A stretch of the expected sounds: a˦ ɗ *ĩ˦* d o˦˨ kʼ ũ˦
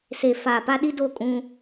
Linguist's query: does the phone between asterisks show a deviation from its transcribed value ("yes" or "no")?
yes